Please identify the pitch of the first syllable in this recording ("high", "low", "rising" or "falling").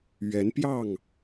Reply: rising